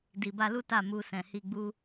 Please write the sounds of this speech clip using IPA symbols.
d i˨ b a˧ l u˦ t a˦˨ m u˧ s ɛ̃˨ h i˧ ɡ͡b u˦

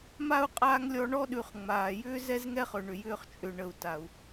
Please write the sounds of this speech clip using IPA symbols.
m a˥ u̯ qʼ aː˦ ŋ lʲ ɔ˦ ɳ ɔ˦ ɗ ʉ˨ χ ŋ͡m aː˩ j ʏː˦ z ɛ˥ z ŋ ɛ˥ χ ɵ˨ ɳ ʏ˨ j ʏː˦ χ t͡ʃʼ ʏ˨ ɳ ə˨ u̯ t a˩ u̯

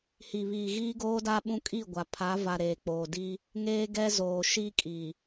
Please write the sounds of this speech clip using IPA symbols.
h i˨ β iː˨ ɣ iː˦ ɡ oː˦ d a˦ ɓ ũ˦ kʼ i˦˨ ɡʷ a˨ pʰ a˨˦ v a˨ ɾ eː˨ k͡p oː˨ d i˦ | ŋ eː˦ ɡ ɛ˦ z oː˨ ʃ i˦ kʼ i˨

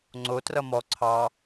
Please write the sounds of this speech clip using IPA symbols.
ŋ͡ǀ o t r ʌ m ɔ ǀʰ ɑ

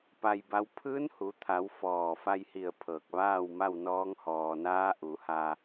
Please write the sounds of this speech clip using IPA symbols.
p a˧ j b a˧˥ w pʰ ɯː˧˥ n h u˩˧ t̪ʰ a˩˧ w f ɔː˧˩ f a˧ j h i˧˩ ə̯ pʰ ɤː˧˩ k̚ ʋ aː˥˨ w m a˥˨ w n ɔː˧˥ ŋ h ɔː˩ n aː˧˥ ʔ u˩˧ h a˧

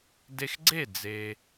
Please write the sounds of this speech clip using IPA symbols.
d e˧ x ɡ͡ǀ e˥˩ d͡z e˩

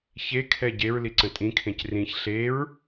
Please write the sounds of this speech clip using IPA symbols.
ç e kʰ ɛ ɟ e ɹ l i ǀ ə̃ tʼ ĩ kʰ ẽ c r ĩ ç ɬ e ɹ

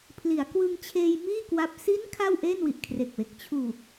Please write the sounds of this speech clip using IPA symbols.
pʰ l i˩˦ a̯ k w ɯ˧ ŋ t͡ɕʰ eː˧ j m iː˥˩ k w a˦˥ p̚ s i˦˥ n kʰ a˥˩ w ʔ eː˥˩ n w i˨˩ ʔ kʰ r e˨˩ k̚ w e˨˩ k̚ t͡ɕʰ uː˨˩ k̚

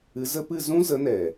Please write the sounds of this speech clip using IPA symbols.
ɨ˨˦ z ə˧ p ɨ˦˨ z ũ˦ z ə˨˦ n ɛ˨

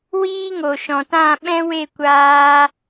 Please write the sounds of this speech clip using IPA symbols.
w iː˦ ŋ o˨ ʃ ɔ̃˨ t ã˦˨ ɓ ɛ̃˦ w e˦˨ kʷ aː˧

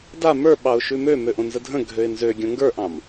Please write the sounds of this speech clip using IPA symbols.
d a m ə˞ ɓ ɑ ʊ̯ ʃ ʉ m ø m ø ʔ õ n z ə dʱ ə̃ ɡʱ ø ɪ̯ n z ø ɡʲ õ ŋ ɡ ə˞ ʔ ɑ̃ m

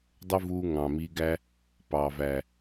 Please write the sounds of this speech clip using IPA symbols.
dˤ ə˧ v uː˧ ŋ ɑ̃˨ m i˧ ɡ æ˦ | p ɑː˨ v æ˨

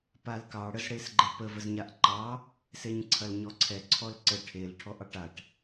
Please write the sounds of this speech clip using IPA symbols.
p a l k ɑ ɽ ə z ɽ e s ɡ͡ǃ ɛ p ə v ə z ɲ a ʔ ǃ ɑ | s e ɲ ǀʰ ɐ l ɲ ɔ ǀʰ ɛ ǀʰ ɔ l ǀ ə ʈʰ e l ʈʰ ɔ ʔ ɑ ʈ a ʈ

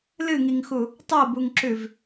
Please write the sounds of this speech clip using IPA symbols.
l ɨ ŋ i ŋ x u | tˤ o b u ŋ ǁ ʉ v

